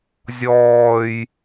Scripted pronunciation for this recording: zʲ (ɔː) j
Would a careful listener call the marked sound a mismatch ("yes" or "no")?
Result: no